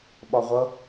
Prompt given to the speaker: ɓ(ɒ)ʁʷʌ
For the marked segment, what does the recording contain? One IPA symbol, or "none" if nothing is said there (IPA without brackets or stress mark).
ɒ